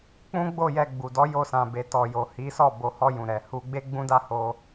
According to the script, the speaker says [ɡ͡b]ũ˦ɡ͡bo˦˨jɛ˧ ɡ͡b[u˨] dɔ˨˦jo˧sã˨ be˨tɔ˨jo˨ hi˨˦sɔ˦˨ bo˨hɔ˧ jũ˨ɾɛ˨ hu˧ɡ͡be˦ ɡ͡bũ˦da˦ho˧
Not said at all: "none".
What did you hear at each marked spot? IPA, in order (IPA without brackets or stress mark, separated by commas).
k͡p, u˨